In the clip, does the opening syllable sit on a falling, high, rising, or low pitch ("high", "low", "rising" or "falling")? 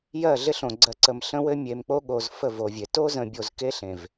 falling